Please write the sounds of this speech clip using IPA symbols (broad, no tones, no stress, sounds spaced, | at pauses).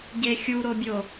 ɟ e xʲ u ɾ o bʲ o